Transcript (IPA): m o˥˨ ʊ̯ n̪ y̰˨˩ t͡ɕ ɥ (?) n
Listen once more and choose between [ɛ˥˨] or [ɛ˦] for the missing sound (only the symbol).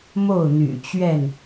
ɛ˥˨